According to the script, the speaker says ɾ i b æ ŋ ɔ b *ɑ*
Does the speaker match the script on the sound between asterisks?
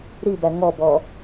no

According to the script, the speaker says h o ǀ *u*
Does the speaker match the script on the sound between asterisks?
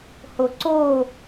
no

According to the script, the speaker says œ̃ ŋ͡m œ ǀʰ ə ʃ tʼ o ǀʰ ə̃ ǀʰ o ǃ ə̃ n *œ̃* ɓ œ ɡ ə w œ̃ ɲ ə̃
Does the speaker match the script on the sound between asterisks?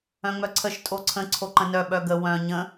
no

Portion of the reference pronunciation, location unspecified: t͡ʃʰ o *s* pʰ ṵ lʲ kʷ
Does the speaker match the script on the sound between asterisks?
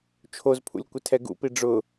no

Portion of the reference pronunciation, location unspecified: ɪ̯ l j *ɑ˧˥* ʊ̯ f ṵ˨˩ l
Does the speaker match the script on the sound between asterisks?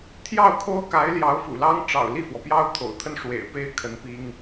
yes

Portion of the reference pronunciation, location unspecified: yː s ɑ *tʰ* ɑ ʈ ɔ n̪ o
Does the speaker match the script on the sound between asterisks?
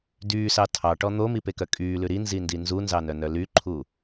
yes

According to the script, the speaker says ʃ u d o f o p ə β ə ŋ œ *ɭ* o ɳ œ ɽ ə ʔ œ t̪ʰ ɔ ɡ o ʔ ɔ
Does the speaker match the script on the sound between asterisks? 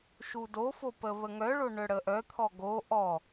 yes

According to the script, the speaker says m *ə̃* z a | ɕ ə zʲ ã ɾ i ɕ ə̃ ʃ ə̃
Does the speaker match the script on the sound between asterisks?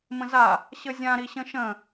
yes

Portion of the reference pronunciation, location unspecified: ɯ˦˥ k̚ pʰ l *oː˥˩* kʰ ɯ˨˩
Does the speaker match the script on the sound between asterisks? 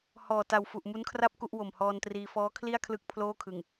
yes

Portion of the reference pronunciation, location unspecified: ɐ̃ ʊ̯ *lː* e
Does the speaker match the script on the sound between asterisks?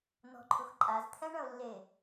yes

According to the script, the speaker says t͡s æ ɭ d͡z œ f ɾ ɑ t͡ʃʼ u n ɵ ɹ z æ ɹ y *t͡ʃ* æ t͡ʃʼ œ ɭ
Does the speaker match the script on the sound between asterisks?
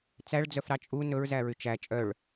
yes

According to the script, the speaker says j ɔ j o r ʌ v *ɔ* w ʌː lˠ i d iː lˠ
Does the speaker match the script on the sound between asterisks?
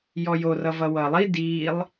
no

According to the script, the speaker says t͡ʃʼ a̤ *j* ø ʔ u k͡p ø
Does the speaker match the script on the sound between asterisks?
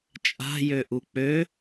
yes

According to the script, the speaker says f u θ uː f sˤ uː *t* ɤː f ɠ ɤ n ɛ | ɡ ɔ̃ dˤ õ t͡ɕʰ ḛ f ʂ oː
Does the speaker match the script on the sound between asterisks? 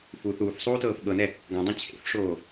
yes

